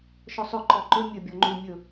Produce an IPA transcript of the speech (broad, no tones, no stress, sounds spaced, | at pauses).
ʃ ɔ sˤ ɵ ǃ ɔ ǃ ɵ mʲ ɵ bʲ ɔ ŋ͡ǃ u mʲ ɵ